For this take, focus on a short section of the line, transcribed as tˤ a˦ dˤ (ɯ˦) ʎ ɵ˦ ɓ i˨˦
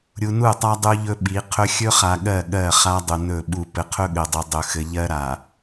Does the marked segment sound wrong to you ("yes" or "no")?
yes